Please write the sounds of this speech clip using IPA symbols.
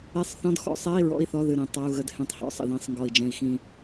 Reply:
e˧˥˧sˤθɔ̃˧˥˧d xɔ̰˧˥˧sˤɛ˧˥˧i̯ ɹɔ̰˧˥˧i̯θɔ˧˥˧ðɨ˧˩ ɾĩ˧˩ tˤa˧˥˧u̯ɣə˧˥˧d hẽ˧˩tˤhɔ̰˧˥˧ sˤə̰˧˩ðĩ˧˩sˤŋɡɔ˧˩i̯d͡ʒɛ̃˧˩i̯ xĩ˧˩

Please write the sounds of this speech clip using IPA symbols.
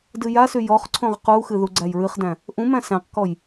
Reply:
dɨjasy jɔχ ǀʰõʁquxɨ ðuɡ͡ǀæjɹɨχdæ̃ | ʔũmæ̃ sæ̃qkɔj

